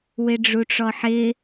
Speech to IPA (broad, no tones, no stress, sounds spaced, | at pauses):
w ɪ ɖ͡ʐ u ʈ͡ʂ ɔ ħ ɪ